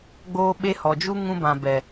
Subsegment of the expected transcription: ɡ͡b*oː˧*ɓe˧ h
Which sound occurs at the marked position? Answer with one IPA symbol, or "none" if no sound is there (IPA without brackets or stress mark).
oː˧